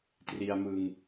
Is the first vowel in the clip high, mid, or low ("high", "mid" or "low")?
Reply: high